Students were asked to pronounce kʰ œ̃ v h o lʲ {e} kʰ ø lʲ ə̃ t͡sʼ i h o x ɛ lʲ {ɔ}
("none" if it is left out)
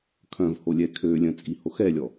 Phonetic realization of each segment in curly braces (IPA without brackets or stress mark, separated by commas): ɛ, ɔ